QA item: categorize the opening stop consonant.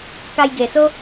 plain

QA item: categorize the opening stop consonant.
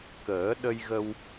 plain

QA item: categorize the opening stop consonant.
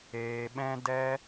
implosive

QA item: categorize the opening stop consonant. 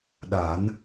implosive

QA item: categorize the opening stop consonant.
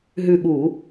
implosive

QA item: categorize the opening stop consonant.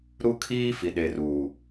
aspirated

